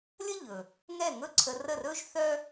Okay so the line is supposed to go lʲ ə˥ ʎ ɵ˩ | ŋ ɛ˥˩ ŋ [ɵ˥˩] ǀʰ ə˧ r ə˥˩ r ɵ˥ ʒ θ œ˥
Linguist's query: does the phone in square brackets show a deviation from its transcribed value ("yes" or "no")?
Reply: no